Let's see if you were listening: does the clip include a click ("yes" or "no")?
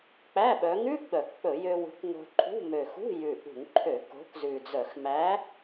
yes